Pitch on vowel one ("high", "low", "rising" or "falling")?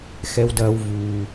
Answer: low